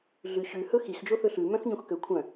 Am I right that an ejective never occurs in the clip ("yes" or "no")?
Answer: yes